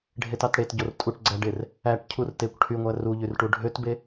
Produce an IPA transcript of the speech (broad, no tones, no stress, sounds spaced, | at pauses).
ɖʱ e t ɑ t ɽ e t ɟ o r tʼ u ʈ ɡ͡ǀ æ ɖ e r | æ ʈ cʰ u r t e kʷ ʈʰ y ŋʷ æ r u ʎ y r ʈ u ɖʱ ø t b e